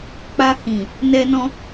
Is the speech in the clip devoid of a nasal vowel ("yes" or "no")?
no